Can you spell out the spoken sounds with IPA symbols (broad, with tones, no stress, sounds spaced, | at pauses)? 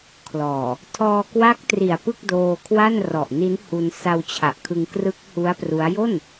kʰ l ɔː˨˩ | tʰ ɔː˧ k w a˦˥ k̚ t r i˨˩ a̯ p ɯ˥˩ k̚ d oː˧ kʰ w a˥˩ n r ɔ˨˩ ʔ n i˦˥ n h u˧ n s a˧ w t͡ɕʰ a˨˩ ʔ kʰ ɯ˧ ŋ k r ɯ˦˥ k̚ h u˦˥ a̯ p r u˦˥ a̯ j o˥˩ n